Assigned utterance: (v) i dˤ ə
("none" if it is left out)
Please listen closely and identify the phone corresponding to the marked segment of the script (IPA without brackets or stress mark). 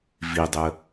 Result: v